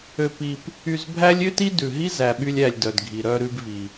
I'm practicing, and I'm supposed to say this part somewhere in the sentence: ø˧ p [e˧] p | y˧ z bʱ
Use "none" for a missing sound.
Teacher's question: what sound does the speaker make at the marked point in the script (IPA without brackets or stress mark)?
i˧